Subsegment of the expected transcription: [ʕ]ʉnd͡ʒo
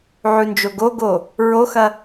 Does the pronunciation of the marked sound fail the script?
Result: no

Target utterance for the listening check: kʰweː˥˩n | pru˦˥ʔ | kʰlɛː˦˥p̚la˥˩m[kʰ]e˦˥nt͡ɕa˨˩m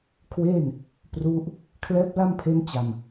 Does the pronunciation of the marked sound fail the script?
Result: yes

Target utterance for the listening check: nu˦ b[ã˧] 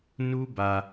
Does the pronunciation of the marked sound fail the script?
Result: yes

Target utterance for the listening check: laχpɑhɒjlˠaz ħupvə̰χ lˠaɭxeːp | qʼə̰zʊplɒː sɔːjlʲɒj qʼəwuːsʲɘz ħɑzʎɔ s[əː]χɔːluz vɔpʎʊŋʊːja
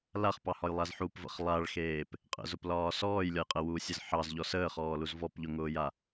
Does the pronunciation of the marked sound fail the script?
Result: no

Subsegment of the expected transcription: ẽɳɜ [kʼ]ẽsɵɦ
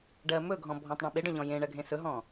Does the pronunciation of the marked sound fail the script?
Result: yes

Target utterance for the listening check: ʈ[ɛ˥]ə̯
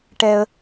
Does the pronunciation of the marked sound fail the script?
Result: no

